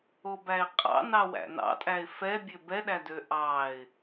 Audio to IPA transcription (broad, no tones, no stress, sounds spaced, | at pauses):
o b æ ɪ̯ qʼ ɑ̰ n ɑ w æ̰ n ɑ̰ tʼ æ ɪ̯ f ɛ bʲ ø b ɛ ɗ æ d ø ʔ ɑ ɪ̯